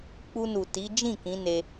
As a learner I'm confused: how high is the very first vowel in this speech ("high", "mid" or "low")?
high